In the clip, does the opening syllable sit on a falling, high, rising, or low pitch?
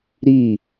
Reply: falling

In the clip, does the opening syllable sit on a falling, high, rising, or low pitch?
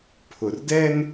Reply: low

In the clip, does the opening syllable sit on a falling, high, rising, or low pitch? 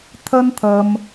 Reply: high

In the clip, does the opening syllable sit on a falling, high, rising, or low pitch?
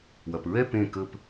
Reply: low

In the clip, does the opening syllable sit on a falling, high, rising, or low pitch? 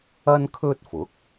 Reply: high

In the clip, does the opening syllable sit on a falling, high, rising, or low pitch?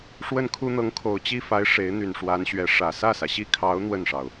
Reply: falling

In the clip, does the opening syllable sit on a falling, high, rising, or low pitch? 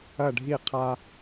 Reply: falling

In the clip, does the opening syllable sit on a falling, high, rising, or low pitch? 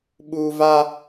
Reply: high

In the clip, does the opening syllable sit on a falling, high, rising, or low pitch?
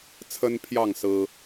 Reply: high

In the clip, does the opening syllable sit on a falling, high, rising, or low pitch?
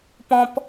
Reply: high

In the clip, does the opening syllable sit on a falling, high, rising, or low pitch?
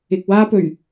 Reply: low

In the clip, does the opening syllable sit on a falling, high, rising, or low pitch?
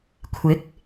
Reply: rising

